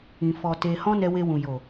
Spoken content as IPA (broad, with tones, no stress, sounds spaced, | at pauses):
ĩ˧ f ɔ˧ t e˧ h ɔ̃˦ n ɛ˧ w e˧ w ũ˨ j o˨